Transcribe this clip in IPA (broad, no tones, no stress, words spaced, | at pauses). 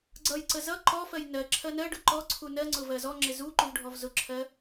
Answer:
ɡ͡ǀʌjǀə zʌ ǃɔfɜj nɜ ǁʰɜnɜɖʊ ǃɔ ǀʰunɜŋ͡ǀʊ vɜzɔŋ͡ǁɪ zu ǃuvɖʱɔvzʊǁʰɜ